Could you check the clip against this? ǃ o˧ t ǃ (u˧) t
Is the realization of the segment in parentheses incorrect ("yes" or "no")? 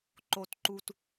no